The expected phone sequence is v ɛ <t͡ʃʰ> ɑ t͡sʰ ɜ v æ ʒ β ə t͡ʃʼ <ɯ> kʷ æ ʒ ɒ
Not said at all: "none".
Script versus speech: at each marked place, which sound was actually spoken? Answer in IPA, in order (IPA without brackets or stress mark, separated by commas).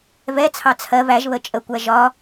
t͡sʰ, ə